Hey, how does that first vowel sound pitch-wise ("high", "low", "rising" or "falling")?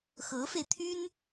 rising